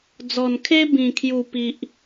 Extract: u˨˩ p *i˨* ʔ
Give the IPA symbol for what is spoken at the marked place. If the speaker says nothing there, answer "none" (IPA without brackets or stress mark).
i˨